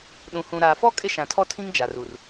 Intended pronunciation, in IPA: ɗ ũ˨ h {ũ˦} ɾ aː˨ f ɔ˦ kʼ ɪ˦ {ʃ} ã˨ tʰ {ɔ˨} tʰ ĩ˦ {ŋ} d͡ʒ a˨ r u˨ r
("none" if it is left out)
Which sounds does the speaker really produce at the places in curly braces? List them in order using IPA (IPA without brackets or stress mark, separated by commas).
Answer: ũ˨, ʃ, ɔ˦, ŋ